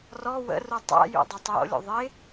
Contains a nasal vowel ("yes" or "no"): no